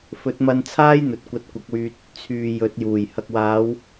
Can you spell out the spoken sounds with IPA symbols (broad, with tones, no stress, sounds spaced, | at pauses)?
f ɵ˨˥ t̚ m ɐ˧ n t͡sʰ aː˥ j n̪ ɵ˨ t̚ kʷ ɐ˧ t̚ kʷ ɐ˨˥ k̚ w yː˧ t̚ | t͡sʰ yː˨˩ j ɵ˨˥ t̚ j uː˨˩ j h ɐ˨ k̚ w aː˨˧ w